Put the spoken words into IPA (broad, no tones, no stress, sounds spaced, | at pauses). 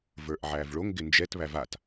v ə˞ ʔ ʕ æ v ɭ o ŋ ɡ ɪ n d͡ʒ ɛ t β æ v a t